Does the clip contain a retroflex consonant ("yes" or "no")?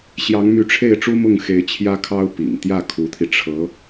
yes